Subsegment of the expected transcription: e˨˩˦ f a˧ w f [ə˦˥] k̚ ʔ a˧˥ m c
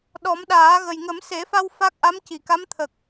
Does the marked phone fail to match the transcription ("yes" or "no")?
yes